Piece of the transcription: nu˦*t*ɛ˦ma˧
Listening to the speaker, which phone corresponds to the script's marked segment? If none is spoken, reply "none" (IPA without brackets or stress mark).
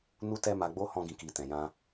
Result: t